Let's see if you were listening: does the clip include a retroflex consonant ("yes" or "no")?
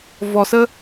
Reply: no